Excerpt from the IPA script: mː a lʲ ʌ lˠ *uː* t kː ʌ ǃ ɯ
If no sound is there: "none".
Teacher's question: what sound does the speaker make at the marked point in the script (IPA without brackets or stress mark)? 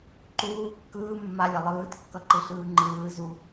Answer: ɯː